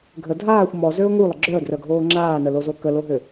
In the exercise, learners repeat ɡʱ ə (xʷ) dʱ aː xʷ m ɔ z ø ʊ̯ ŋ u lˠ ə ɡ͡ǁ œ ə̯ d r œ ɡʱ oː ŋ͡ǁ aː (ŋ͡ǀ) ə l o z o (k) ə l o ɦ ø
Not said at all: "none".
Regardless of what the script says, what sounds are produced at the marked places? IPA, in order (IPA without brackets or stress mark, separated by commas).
none, n, k